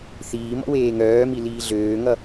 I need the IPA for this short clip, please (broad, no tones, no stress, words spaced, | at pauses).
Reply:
θiːmɔ̰ weːŋœːmi liːɮøːŋʌ